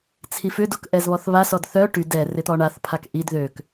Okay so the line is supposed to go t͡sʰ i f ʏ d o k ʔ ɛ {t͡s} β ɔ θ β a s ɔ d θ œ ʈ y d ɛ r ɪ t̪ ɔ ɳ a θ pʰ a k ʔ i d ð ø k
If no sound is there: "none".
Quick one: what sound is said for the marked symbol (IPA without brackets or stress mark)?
z